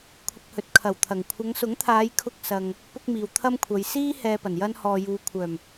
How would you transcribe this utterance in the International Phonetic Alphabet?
kʷʰ ɪ˧ k̚ h ɵ˨˥ t̚ kʰ ɐ˨˩ w t̪ʰ ɐ˨˩ ŋ kʷʰ ɐ˨˧ ŋ s ʊ˨˥ ŋ t̪ʰ aː˨˧ j kʰ ʊ˧ k̚ s ɐ˨ ŋ | p ʊ˥ k̚ m iː˨ w t̪ʰ ɐ˥ m kʷʰ ɐ˨˧ j s iː˥ h ɛː˧ p ɐ˨˩ n j ɐ˥ n h ɔː˨ j uː˨˧ kʷʰ œː˨˩ m

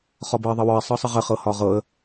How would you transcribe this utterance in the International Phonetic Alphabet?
χ ɒ b ɤ ɪ̯ ðˤ ə w ɒ ɪ̯ sˤ ɤ sˤ ə ʁ ə χ ɤ h ɒ ʁ ɤ ə̯

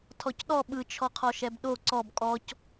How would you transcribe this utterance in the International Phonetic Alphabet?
tʰ ɔ c ɗ ɔ ɓ ɯ t͡ʃʰ ɔ qʰ ɔ ʃ ɛ b ɗ o ǀ ɔ b kʼ ɔ c

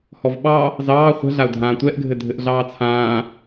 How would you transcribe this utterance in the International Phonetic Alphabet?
h ɔ v ɓ ɑ | z ɑː χʷ ɛ̤ ɮ a ʊ̯ dʱ ãː tʷ ɛ ʔ ɡʱ ɘ dʱ ɘ ʔ ɮ ɑː t͡sʰ ãː

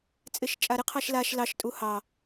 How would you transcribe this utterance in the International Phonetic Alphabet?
t͡sʼ ɪ ʃ t͡ʃʼ a ɾ ɪ qʰ ɑ ʃ l a ʃ l ɑ ʃ tʼ u h ɑ

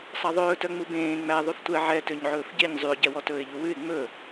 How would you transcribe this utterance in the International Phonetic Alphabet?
sˤ ɑ ðˤ ɵː t œ ŋ͡m u b ẽː ŋ͡m æ ðˤ y f tʷ ɛ ʕ ɛ t ø ɲ ʕ ɵː f ɟ e ɲ zˤ y ʊ̯ ɟ ɛ w ɔ t ɵː ɪ̯ ʎ u w ʉ ɪ̯ ŋ͡m ɵ

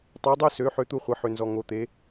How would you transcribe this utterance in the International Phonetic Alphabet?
tˤ y˩˧ dˤ ø˧ s ø˩˧ ħ ø˧ t̪ u˧ χʷ ɘ˩˧ ħ ø˩ n z ɔ˩ ŋ o˩˧ t̪ e˩˧

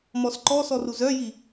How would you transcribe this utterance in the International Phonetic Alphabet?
m ɔ s ǃ ɔ s ɔ r u z œ j i

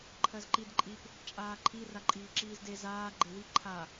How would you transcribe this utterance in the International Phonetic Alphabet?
ǃʰ ɜ z ǃ i d ǃʼ i p | t͡ʃʼ aː ǃʰ i r a ǃʼ iː ǁ iː z d e z aː ɡ͡ǃ e w i ǃʰ a

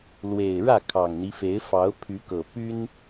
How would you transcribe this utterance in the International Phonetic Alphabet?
l w e˨˩ ɪ̯ ɻ ä˥˨ kʰ ɑ˨˩ ŋ n̪ i˦ f e˨˦ ɪ̯ f ɑ˨˦ ʊ̯ pʰ y˨˦ k ɤ˨˩ p y˦ n

